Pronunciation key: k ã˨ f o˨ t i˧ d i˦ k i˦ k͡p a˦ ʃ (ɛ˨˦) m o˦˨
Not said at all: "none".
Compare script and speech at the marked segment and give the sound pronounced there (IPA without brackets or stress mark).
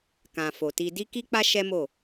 ɛ˦